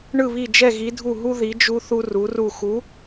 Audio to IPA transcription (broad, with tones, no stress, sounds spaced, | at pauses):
ɳ ɯ˥˩ β i˥˩ d͡ʒ ɛ˥˩ ɣ i˨˥ dʱ u˥˩ ɦ u˦ ð i˨˥ d͡ʒ u˦ θ u˦ r u˨˥ r u˥˩ x u˨˥